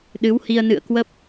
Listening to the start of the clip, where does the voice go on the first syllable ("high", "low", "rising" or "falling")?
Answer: rising